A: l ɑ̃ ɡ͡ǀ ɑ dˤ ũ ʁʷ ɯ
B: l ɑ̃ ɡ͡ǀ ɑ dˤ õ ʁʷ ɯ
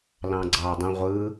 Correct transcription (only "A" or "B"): A